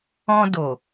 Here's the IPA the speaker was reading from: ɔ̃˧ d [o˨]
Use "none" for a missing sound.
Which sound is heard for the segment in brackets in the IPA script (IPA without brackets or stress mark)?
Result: o˨